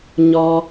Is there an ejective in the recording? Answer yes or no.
no